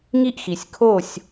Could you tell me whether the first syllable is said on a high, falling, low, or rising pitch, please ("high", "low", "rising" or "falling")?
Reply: high